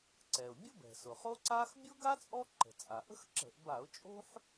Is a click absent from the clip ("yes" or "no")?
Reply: no